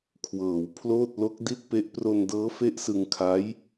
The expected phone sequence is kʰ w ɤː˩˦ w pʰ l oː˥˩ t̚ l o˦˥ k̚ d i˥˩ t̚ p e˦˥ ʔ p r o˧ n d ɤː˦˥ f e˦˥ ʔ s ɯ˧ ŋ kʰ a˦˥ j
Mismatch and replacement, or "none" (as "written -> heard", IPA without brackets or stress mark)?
none